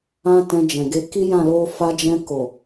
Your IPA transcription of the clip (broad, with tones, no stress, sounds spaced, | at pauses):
ã˦ t ɛ̃˧ d͡ʒ ɛ̃˨ ɡ e˧ k i˦ j ã˦˨ l o˧ f a˧ d͡ʒ ɛ̃˧ k o˨